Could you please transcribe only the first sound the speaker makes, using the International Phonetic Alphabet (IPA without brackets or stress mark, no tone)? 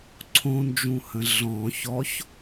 ǀʰ